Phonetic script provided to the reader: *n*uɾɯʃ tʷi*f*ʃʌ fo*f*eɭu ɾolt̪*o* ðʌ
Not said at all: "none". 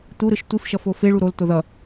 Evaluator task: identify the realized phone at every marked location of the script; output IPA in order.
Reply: t̪, f, f, o

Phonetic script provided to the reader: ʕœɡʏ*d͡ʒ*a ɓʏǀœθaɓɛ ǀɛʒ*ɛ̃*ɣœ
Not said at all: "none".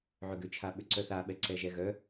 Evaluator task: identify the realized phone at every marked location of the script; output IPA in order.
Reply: t͡ʃʰ, ɛ

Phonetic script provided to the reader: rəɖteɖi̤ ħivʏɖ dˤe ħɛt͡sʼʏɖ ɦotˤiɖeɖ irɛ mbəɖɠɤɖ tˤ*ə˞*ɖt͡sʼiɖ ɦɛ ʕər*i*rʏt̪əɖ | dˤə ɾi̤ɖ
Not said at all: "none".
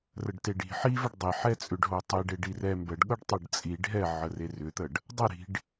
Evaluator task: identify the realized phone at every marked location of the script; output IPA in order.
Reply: ɤ, e

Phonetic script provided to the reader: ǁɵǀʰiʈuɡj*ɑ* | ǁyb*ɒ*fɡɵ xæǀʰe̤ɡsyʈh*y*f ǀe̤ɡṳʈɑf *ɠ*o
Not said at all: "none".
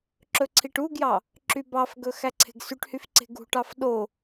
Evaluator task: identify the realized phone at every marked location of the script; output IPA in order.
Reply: ɑ, ɑ, y, ɗ

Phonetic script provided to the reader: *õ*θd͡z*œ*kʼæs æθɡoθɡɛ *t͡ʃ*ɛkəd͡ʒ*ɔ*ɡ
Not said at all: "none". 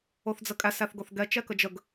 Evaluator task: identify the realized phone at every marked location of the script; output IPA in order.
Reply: o, ə, t͡ʃ, ə

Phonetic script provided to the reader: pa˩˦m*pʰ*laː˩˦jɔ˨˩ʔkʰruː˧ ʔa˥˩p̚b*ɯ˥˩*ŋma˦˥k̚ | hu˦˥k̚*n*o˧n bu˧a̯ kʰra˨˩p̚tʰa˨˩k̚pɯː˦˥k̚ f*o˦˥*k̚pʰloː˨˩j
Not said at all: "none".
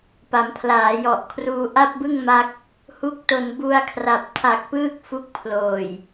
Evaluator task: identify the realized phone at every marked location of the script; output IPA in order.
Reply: pʰ, ɯ˥˩, t, u˦˥

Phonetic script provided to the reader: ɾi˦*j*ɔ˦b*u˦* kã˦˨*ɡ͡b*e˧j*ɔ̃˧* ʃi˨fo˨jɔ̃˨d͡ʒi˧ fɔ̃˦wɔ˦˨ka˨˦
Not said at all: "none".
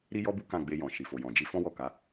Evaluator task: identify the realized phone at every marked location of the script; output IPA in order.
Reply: j, u˦, ɡ͡b, ɔ̃˨

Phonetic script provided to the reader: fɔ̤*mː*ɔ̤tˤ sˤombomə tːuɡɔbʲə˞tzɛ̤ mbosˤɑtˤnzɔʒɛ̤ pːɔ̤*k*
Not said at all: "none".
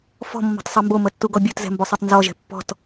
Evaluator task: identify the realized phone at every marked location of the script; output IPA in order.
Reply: mː, t

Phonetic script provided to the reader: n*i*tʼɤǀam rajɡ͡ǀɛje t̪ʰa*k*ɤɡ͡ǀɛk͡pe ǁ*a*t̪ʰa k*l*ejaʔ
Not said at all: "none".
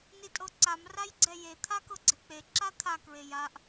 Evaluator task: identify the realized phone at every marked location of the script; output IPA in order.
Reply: i, k, a, ɹ

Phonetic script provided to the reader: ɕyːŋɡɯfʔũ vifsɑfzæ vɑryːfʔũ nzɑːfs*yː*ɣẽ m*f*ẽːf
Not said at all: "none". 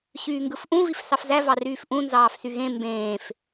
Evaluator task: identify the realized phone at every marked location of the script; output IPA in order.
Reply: y, b

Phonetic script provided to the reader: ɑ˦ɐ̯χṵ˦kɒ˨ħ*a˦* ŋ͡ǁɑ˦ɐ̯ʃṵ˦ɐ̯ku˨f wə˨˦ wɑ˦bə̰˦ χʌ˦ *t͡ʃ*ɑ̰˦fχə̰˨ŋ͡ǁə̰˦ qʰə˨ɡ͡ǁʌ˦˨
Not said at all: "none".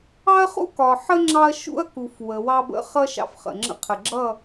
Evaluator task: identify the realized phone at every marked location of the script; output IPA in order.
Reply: ə˦, ʃ

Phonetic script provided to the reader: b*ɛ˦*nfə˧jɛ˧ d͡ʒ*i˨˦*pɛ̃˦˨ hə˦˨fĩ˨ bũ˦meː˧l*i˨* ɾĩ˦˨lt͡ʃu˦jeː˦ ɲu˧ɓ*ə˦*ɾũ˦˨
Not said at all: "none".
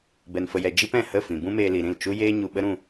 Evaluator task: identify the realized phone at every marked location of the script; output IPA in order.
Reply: ɛ˧, i˦, i˨, ə˦

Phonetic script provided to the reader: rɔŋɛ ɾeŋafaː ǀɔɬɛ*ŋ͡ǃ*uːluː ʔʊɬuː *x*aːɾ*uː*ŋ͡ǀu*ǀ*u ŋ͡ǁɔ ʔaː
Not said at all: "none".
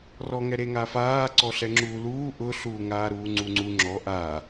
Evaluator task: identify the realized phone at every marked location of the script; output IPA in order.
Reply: ŋ͡ǁ, ŋ, uː, ŋ͡ǀ

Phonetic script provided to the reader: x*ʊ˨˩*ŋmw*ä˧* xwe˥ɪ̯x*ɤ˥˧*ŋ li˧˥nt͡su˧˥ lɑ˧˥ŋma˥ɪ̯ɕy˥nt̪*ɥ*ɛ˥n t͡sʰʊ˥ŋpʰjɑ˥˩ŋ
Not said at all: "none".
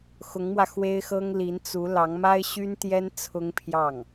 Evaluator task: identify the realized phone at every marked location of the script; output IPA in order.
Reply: ʊ˧˥, ä˧, ɤ˥, j

